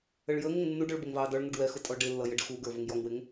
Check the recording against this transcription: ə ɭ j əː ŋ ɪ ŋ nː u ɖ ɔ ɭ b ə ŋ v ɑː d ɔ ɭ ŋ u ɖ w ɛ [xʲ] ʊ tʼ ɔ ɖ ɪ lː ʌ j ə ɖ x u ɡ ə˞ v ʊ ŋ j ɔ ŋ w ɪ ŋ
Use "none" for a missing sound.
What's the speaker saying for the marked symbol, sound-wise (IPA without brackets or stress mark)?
x